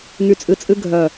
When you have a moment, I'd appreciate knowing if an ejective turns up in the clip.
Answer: yes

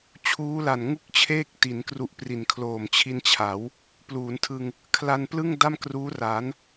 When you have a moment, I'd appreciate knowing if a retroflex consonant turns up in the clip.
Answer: no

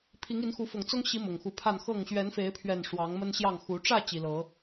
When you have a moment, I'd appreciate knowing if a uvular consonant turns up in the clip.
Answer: no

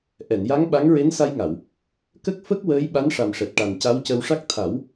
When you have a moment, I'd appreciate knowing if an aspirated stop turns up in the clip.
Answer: yes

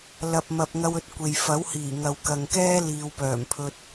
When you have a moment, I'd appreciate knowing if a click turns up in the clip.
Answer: no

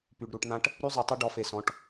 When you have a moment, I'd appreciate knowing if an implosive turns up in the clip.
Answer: no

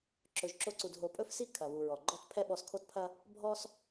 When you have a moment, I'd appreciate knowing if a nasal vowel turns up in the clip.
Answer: no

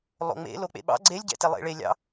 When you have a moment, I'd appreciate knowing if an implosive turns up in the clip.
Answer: yes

